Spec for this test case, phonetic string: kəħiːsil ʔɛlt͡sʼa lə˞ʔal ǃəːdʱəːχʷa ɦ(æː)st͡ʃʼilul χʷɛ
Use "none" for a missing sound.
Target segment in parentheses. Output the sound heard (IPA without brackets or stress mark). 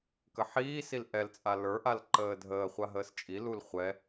əː